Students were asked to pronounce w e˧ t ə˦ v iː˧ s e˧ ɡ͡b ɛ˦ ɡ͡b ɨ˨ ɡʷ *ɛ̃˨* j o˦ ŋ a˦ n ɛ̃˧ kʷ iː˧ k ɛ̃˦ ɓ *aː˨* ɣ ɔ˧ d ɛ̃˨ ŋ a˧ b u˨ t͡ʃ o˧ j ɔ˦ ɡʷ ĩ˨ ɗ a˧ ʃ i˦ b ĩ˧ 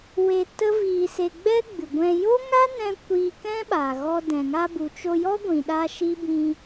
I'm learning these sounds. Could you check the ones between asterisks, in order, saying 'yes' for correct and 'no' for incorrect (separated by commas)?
no, yes